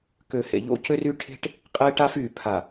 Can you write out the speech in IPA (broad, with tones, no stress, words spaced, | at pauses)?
kø˨hḛ˨ ʎo̰˦cø˦ry˦ ʈʰe̤˦ʈ | qʼe˦ʈa˦fyː˨pʰa˨